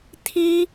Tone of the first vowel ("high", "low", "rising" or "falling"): high